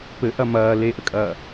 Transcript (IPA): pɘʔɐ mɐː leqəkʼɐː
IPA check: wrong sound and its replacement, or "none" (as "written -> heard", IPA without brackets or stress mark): q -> ʔ